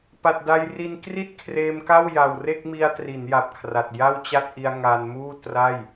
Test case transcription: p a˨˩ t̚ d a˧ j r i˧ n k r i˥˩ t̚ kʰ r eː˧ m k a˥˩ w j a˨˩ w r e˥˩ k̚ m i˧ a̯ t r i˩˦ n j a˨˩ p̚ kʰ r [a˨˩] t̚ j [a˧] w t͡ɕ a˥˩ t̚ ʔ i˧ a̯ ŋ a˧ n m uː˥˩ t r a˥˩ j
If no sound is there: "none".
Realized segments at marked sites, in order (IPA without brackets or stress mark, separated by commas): a˨˩, a˥˩